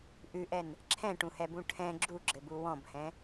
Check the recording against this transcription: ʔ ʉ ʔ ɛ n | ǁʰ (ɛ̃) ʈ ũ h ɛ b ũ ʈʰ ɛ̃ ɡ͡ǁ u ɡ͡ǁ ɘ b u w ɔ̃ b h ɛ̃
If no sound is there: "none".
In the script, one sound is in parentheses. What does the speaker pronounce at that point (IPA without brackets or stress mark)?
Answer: ɛ̃